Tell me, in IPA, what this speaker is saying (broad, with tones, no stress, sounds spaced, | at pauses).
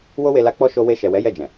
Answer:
w o˧ w e˨ l a˨˦ k͡p ɔ˧ ʃ o˧ w e˧ ʃ ɛ˨ w ɛ˨˦ j ɛ˦˨ d͡ʒ ɛ̃˨